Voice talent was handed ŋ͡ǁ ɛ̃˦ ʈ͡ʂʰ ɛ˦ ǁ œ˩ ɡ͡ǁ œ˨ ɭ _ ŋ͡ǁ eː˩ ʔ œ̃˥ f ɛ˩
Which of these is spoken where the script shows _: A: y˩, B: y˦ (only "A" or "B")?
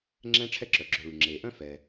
A